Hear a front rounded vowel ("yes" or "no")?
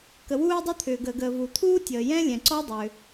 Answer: yes